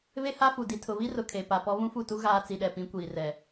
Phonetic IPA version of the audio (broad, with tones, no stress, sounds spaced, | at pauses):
β e˦ h a˦ f u˨ d i˨ tʰ ʊ˨ β i˦ r ʊ˨ kʰ e˨ p a˨ p ɔ˦ β ũ˦ f u˦˨ t u˦ ɣ aː˦ t͡s i˨ ɗ ɛ˨ p ĩ˨˦ kʷ iː˨ r ɛ˨